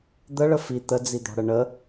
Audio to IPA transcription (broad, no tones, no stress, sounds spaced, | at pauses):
d̪ ə ɭ ə f i t̪ ə d͡z i d̪ ɔ̤ ɽ ə ɳ ə